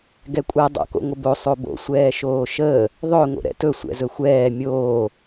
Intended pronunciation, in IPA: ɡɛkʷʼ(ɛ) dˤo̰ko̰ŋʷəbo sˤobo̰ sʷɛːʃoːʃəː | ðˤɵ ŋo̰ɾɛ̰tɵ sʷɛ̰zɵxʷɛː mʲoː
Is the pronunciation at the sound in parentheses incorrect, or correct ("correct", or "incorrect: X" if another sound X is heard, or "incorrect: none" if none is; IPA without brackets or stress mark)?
correct